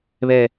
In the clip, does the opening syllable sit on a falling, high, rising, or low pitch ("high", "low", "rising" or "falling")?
high